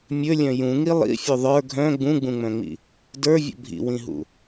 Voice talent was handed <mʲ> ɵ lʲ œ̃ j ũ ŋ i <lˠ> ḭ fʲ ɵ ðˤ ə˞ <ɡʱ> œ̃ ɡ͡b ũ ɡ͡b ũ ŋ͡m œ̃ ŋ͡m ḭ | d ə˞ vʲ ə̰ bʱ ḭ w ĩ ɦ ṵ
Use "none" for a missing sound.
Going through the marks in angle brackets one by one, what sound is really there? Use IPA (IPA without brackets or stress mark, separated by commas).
mʲ, lˠ, ɡʱ